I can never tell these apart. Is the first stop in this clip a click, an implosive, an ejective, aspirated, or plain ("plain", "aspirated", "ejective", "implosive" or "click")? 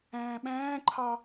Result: implosive